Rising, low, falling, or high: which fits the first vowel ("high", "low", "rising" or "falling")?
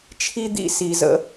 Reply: high